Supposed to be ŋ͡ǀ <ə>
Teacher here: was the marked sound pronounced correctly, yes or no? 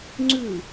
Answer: no